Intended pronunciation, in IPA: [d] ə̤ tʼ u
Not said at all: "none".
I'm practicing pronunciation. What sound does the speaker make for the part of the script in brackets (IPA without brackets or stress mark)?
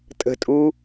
tʼ